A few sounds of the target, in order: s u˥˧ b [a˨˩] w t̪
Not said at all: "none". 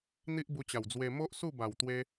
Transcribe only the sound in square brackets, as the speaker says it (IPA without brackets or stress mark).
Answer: a˨˩